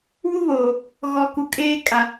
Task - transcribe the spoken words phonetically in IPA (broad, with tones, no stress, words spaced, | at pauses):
wu˦βoː˨ | ɣɔ˨ku˨ kʼeː˦kʼa˨